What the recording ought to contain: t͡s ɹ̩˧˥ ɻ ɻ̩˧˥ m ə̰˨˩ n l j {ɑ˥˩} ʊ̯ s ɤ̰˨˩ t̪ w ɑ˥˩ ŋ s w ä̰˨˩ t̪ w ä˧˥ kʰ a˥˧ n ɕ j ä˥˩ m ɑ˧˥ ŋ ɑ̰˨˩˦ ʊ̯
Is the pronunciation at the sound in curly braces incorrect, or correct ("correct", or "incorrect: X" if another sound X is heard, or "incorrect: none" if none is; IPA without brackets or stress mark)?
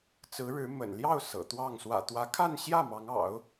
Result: correct